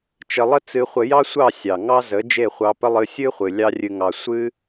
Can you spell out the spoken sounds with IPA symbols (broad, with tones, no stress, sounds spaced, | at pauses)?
t͡ʃ ə˧ lˠ ə˦ t͡s ɨ˧ χʷ ə˧ j ɑ˦ sʷ ɑ˦˨ sʲ ɑ˨ ŋ ɑ˦ z ə˨˦ d͡ʒ e˦˨ χʷ ɑ˧ p ə˦ lˠ ɨ˧ sʲ ɨ˦ χʷ ɨ˨ lʲ ɑ˦ rʲ ɨ˧ ŋ ɑ˧ sʷ ɨ˦